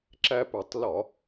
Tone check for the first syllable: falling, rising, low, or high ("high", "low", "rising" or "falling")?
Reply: high